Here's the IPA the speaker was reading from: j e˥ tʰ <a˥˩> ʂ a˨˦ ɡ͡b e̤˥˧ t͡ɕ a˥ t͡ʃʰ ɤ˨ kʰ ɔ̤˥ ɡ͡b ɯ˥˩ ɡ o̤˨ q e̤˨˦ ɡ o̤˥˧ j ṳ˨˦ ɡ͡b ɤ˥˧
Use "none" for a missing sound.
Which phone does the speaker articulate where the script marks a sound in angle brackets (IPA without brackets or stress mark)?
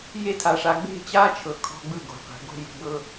a˨˦